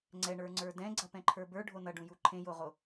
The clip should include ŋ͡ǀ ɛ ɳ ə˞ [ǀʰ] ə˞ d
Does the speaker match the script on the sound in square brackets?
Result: no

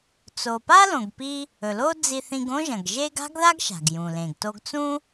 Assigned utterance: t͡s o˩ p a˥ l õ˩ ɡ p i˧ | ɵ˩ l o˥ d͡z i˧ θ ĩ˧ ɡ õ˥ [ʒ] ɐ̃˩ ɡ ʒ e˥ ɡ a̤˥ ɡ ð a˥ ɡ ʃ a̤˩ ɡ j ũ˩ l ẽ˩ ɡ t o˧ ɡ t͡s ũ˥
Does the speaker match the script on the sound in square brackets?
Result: yes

